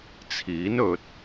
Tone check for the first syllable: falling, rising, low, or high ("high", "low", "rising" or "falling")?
rising